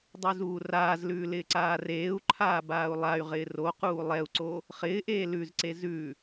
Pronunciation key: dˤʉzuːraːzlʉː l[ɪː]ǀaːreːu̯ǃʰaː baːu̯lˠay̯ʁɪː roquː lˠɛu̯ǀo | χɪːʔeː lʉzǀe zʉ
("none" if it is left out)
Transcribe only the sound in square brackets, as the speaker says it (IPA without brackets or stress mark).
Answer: ɪː